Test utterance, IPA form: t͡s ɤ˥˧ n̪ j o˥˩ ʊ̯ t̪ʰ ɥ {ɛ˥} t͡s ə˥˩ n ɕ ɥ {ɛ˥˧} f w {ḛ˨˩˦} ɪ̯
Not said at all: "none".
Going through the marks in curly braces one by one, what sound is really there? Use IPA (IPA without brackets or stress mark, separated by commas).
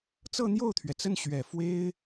ɛ˩, ɛ˨˩, e˥